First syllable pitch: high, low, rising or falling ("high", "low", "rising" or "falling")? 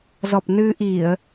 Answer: low